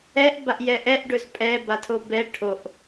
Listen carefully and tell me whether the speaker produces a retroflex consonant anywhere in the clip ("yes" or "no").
yes